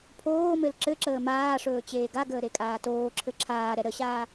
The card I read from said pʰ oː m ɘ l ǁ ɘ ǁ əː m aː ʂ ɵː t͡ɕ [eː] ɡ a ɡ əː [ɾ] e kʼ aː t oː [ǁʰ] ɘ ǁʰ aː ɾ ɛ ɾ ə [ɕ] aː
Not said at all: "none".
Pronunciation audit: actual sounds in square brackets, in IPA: eː, ɾ, ǁʰ, ɕ

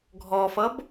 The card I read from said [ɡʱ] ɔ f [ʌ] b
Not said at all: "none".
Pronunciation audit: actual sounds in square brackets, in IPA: ɡʱ, ʌ

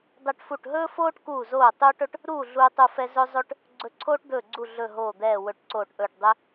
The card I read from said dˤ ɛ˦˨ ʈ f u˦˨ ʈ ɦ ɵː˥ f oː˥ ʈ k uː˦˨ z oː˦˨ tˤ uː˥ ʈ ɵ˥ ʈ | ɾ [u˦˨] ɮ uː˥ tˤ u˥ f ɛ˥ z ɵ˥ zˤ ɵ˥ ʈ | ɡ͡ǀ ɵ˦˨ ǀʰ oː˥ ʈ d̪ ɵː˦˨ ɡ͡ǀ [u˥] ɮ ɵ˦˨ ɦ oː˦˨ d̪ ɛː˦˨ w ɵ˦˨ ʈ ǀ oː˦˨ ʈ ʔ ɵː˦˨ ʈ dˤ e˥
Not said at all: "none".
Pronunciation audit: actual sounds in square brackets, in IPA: uː˦˨, u˦˨

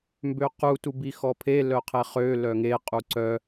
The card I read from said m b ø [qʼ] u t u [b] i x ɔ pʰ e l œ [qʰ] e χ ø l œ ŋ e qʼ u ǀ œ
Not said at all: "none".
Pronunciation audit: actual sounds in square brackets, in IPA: q, b, qʰ

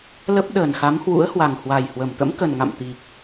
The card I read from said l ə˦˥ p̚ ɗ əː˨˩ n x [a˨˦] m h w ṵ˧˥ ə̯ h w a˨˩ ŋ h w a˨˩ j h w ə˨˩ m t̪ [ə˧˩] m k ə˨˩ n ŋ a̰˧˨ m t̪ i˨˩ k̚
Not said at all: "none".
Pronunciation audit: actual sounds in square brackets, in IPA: a˨˦, ə̰˧˥

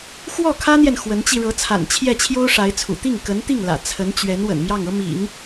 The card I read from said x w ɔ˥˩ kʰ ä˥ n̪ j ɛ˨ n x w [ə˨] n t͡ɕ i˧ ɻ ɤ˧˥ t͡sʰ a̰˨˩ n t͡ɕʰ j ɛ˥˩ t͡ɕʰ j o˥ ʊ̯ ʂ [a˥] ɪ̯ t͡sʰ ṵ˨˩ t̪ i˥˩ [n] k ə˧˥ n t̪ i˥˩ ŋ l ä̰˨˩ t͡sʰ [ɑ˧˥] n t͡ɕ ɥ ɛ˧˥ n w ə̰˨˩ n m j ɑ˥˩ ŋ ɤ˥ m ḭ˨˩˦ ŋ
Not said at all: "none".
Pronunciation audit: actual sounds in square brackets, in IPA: ə˧˥, a˧˥, ŋ, ə˧˥

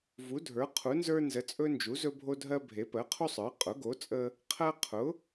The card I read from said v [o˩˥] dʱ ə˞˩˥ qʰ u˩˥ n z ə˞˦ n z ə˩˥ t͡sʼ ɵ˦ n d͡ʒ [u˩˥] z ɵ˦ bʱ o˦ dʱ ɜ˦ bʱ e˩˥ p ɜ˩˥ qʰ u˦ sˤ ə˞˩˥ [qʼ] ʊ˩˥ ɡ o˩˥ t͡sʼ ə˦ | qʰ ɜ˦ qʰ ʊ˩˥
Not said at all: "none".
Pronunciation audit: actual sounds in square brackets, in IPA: u˩˥, u˩˥, qʼ

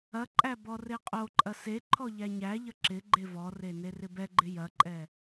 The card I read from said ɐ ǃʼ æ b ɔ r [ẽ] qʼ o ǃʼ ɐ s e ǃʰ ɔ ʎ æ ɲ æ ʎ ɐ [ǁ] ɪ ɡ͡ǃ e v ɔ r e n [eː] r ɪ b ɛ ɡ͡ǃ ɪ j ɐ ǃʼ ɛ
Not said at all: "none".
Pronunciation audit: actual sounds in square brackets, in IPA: e, ǁ, e

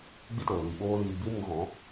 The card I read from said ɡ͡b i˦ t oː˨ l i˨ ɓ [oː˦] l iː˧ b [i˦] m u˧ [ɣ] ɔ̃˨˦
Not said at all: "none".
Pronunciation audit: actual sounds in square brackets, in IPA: oː˦, i˦, ɣ

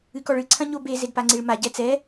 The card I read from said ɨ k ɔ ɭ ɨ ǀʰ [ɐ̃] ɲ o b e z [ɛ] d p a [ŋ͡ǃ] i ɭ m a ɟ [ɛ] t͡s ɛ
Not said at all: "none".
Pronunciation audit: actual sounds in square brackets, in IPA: ɐ̃, e, ŋ͡ǀ, ɛ

